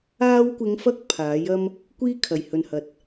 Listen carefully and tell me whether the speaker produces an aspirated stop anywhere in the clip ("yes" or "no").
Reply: yes